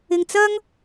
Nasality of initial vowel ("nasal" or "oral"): oral